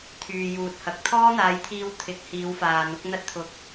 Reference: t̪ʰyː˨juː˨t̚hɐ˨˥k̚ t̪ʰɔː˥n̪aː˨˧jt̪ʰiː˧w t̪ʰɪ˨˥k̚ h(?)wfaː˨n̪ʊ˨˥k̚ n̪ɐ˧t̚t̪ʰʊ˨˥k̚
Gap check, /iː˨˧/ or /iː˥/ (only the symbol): iː˨˧